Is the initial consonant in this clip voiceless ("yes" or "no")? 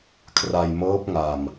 yes